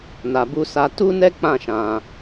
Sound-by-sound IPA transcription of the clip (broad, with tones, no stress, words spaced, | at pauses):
na˨bu˧sa˧ tu˦nɛ˦ k͡pã˦˨ʃã˨